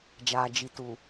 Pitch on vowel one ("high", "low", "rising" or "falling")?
low